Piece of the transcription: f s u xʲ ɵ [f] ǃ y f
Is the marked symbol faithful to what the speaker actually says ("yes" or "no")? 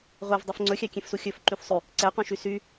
yes